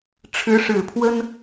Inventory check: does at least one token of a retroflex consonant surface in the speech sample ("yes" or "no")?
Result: yes